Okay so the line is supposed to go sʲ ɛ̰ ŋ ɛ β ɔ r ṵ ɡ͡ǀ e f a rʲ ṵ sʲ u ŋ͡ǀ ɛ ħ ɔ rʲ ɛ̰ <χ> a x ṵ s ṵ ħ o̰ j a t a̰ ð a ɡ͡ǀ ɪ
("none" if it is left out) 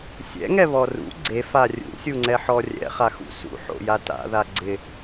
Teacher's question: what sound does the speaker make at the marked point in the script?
χ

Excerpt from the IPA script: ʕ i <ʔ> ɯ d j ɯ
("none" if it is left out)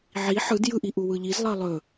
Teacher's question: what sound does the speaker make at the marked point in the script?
ħ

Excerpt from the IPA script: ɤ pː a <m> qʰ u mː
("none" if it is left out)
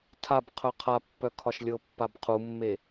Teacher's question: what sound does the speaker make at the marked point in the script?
b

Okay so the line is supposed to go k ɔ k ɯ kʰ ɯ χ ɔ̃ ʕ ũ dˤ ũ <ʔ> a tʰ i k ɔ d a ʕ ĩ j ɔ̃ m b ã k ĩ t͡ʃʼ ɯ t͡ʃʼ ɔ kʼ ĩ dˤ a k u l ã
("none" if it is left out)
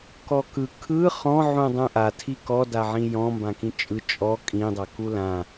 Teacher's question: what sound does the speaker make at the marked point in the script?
ʔ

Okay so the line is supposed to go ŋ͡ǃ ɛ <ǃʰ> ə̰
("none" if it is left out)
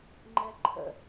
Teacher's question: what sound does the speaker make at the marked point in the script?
ǃʰ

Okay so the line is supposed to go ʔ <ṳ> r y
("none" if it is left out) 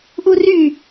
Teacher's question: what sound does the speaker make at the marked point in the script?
u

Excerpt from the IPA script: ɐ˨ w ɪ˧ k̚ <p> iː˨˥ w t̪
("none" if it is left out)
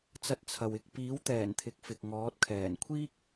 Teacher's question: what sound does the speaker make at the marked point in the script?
p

